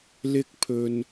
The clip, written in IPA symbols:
lɪ˧k̚pʰɵ˨n

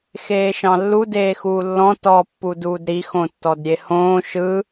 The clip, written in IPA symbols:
xeːʃɑ̃lːu deːxuːlːɔ̃ tɔ pːuduːdɾi xõtːɔdɾʲehõː ʃɯ

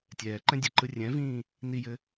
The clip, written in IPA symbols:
tʲɛːǃɛ̃ dʲɘǃɯ rʲɛ̃vĩː | nijɘ

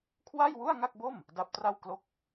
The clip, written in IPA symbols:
kʰwa˥˩jwu˥˩a̯ŋa˥˩k̚bo˥˩m | da˦˥p̚tra˥˩w klo˥˩k̚

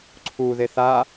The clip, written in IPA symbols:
ǀʰu ðeθa

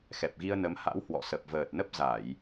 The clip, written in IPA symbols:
xɛ˨˩p̚ɣi˧ə̯nə˨˦m ha̰˧˥whwɔ̰˧˨sə˨˩p̚ vəː˨˩t̚nə˦˥p̚ za˧˩˨j

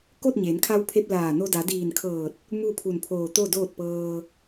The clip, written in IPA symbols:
ko˥˨t̚ɲeː˩˧nkʰa˧wpʰe˧p̚ laː˧˩no˧ da˩˧diː˧˩nkʰɤː˧˩t̚ | mu˥˨pʰu˧˩npʰoː˧˩t̪o˥˨ doː˥˨t̚pɤː˧

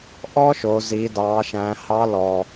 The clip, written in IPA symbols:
ʔɔ˥ʃo˩˧ zi˩˧dɑ˩˧ʃæ̃˩˧ hɑ˧˥lɔ˩

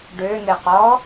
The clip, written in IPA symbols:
ɖøn̪ɪqɔ

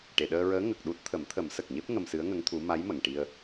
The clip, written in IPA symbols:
ʈe˨˩˨ɗəː˧ɹəː˧˥ ŋə˨˩k̚ɗu˦˥t̚ t̪ʰə˨˩˦mt̪ʰə˨˩˦msə˨˩k̚ɲe˦˥p̚ ŋə˧msɨ˧˥ə̯ŋə˧˥ŋt̪ʰu˧˥ ma˧˥jmə˨˩˨ŋʈi˧ə̯

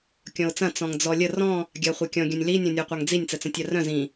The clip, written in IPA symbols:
kʲɔ̃ʊ̯t͡sɐ̃ t͡sɔ̃ŋd͡zɔlʲə rɔ̃ | ɡʲaχʷekʲɔ̃ ɡʲɐ̃nʲli nʲɔ̃nʲœqʷaŋd͡zinʲ t͡sət͡sœ̃tʲarœ̃ zĩ

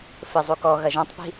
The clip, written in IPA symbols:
fɘ zˤukɔ ɣɐʒɔ̃tˤpi̤

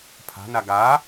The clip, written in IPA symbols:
pʰa̤na ɡa

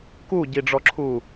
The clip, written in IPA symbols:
kuɟiɖ͡ʐɔǁʰuː

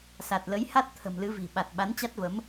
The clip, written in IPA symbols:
sa˨˩t̚lə˨˦jha˦˥t̚ t̪ʰə̤˨˩mlɨ˨˦vi̤˨˩ ɓa˨˩t̚ ɓa˨˦nt͡ɕa˦˥t̚və˨˦m

